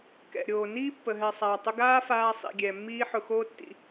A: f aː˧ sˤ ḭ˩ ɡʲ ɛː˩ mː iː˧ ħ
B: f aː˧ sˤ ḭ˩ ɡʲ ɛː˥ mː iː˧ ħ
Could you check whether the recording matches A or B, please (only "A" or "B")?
A